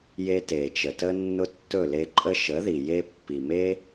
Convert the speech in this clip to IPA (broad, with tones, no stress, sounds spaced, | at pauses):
j e˧ t e˨ t͡ʃ ə˨ t ə˧ nː ʊ˦ tː ɵ˦˨ l e˧ ǃʼ ə˦ ʃ ə˨˦ ð i˨ j e˧ pː i˨ m e˦